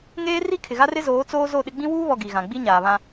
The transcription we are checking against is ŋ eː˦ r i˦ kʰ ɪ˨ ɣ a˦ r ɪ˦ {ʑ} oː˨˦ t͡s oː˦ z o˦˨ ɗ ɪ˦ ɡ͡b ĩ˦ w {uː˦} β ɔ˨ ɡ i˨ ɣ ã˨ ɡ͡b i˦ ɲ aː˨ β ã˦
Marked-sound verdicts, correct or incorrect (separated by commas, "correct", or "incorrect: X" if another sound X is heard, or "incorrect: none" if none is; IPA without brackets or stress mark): incorrect: z, correct